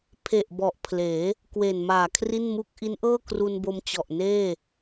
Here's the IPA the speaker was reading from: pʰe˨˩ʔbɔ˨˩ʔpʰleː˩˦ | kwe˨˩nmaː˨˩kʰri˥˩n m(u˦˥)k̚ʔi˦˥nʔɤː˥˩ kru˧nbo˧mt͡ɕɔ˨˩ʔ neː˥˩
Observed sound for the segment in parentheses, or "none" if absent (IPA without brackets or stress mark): u˦˥